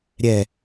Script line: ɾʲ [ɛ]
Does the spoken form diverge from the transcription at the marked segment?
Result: no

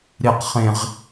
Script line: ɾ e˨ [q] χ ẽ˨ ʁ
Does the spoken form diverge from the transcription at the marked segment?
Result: no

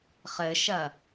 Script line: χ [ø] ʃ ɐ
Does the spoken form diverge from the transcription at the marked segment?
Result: yes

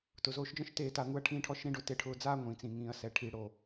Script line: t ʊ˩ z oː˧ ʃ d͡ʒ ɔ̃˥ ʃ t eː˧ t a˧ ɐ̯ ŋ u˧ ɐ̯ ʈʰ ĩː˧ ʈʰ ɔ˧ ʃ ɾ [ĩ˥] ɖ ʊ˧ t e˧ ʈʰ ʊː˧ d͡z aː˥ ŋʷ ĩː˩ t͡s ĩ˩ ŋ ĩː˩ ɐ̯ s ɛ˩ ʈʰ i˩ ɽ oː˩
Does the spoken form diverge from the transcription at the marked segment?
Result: no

